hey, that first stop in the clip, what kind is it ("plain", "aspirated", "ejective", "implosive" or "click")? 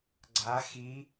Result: click